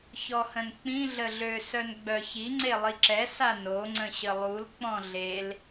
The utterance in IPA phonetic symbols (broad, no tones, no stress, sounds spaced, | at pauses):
ç ɔ h ə̃ n k͡p ĩ ɮ ə ɮ ø s œ n ɡ͡b œ ç i ŋ͡ǀ e lˠ i ǁ ɛ s a n o ŋ͡ǀ ə̃ ɕ ə lˠ u l k͡p ɔ̃ ɮ e l